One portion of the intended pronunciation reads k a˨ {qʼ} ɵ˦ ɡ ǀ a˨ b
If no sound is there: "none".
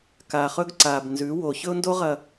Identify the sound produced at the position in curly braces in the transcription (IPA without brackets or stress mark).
χ